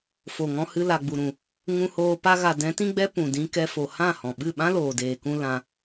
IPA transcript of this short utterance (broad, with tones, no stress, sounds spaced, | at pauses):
f o˨ ŋ ɔ̃˧ h ɨ˧ l a˨ ɡ͡b u˨ ɾ ũ˨ | ŋ ũ˧ h oː˧ p a˦ ɣ a˧ d ɛ̃˨˦ t ĩ˦ ɡ͡b ɛ˦ p ũ˨ d ĩ˧ k ɛ˧ f o˨ h ã˦˨ h ɔ̃˨ ɓ ɨ˦˨ ɓ ã˦ l oː˨ d eː˨ k ũ˧ l ã˧